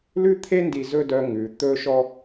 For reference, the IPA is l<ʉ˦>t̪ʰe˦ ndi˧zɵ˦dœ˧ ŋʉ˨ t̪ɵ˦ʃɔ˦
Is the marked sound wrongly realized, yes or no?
no